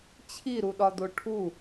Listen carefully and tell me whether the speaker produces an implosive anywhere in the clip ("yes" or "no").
yes